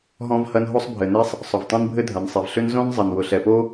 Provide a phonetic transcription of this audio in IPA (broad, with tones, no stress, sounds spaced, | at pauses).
ɦ ɔ̃˥ v h ɐ˥ n ɦ o˥ sˤ bʱ ɘ˩ n e˥ sˤ | sˤ ʊ˩ v tˤ ẽ˥ n bʱ ɘ˥ dʱ ɐ˩ n sˤ e˩ v ɬ ʏ˥ n z õ˥ n zˤ ɐ˩ n w ʊ˩ ɬ ɛ˩ p o˥